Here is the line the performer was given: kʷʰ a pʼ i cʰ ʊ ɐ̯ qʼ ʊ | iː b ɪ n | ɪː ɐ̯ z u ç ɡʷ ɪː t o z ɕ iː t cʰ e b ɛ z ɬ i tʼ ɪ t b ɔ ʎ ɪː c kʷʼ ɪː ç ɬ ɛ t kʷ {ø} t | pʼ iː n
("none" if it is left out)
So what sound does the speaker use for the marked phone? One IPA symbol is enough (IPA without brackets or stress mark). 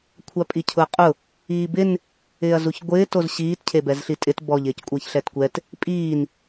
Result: ɛ